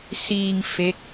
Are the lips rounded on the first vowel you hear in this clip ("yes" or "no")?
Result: no